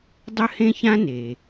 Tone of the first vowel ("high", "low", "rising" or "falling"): high